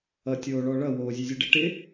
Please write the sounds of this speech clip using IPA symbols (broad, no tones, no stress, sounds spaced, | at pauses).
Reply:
ʌ tʲ oː ɭ ɔ ɭ ʌ w oː zʲ ʉ zʲ ʉ ɖ ɪ ʈ ɪ